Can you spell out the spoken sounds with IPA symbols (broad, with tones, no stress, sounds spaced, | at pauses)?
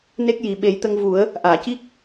n e˦˥ k̚ j i˨˩ ɓ e˨˩˦ j t̪ ə˧ ŋ v u˨˩˦ ə̯ | ʔ aː˨˩˨ c i˦˥ k̚